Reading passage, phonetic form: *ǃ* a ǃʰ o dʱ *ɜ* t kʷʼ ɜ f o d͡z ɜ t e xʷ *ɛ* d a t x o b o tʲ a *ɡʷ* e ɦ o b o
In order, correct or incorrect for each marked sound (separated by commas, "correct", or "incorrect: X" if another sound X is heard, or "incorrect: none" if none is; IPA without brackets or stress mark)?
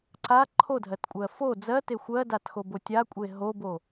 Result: incorrect: ǀ, correct, incorrect: ɜ, incorrect: kʷʼ